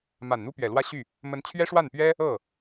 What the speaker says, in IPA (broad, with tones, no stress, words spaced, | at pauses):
ma˨˩n n̪u˥pɥɛ˨˩lwä˥ɕy˥˩ | mə˧˥nt͡ɕʰɥɛ˥ʂwa˥˩npɥɛ˥ | ɤ˥˩